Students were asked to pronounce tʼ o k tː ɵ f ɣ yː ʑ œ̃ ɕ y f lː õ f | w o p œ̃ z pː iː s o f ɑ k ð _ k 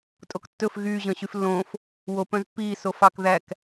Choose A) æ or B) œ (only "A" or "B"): A